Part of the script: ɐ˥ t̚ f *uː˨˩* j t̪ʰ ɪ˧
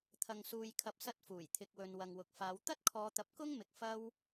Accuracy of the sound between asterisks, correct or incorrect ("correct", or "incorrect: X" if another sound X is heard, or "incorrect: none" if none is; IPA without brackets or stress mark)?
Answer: correct